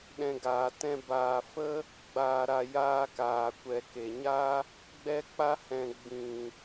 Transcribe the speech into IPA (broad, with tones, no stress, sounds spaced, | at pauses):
ɗ ɛ̃˧ ɡ aː˨ t ɛ̃˦ b aː˨ f ə˦ | ɡ͡b aː˨ ɾ a˨ j aː˧ k aː˨ kʷ ɛ˨ k e˨ ɲ a˦ | ɡ͡b ɛ˧ k͡p a˧ h ɛ̃˨ ɡ͡b ĩ˨